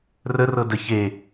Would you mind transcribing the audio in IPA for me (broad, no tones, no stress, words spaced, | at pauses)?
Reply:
rə rɤdə çe